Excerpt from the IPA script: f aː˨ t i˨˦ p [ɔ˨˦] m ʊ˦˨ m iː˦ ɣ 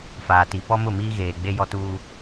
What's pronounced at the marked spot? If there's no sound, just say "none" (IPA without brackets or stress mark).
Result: ɔ˦